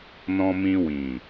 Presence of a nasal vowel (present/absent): present